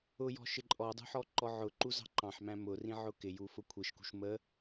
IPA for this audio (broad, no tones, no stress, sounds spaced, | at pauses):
ʊ j ɔ̤ ʃ ɪ ǃʼ ɔ dˤ ṳ ħ ɔ ǃ ɔ ʕ ʊ ǃ u z ɑ̤ ǃ ɑ̃ ħ m æ̃ m ʊ r ĩ ʕ ʊ k ɪ j u f ʊ kʷʰ i ʃ k ṳ ʃ m ə